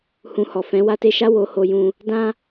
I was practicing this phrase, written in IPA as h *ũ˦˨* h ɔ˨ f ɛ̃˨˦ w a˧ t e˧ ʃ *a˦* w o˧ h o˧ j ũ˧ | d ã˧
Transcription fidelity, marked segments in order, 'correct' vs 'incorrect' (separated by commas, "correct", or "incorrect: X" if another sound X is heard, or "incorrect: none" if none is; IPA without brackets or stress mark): incorrect: ũ˧, correct